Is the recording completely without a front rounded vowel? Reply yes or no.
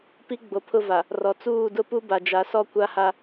yes